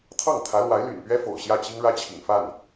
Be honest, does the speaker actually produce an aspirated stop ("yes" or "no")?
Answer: yes